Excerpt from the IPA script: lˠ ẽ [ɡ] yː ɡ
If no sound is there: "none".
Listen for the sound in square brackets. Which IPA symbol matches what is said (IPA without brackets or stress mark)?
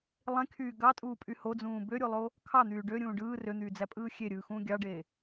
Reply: kʰ